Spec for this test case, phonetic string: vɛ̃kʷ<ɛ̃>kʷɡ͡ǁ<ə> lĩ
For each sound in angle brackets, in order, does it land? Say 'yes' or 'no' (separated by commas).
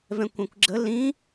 yes, yes